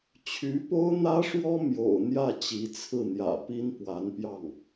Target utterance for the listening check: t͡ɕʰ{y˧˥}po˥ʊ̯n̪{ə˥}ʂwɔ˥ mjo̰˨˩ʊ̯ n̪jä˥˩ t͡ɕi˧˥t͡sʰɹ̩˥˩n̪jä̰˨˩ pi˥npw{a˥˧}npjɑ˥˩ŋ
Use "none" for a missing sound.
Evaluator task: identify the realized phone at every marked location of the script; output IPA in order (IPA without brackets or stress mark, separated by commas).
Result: y˧˥, ä˥, a˧˥